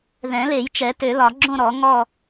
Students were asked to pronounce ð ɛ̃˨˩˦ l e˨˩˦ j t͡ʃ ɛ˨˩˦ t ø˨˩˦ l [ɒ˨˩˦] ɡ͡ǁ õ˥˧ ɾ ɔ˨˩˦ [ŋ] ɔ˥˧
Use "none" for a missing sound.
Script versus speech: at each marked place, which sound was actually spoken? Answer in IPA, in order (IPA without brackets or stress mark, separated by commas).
ɒ˨˩˦, ŋ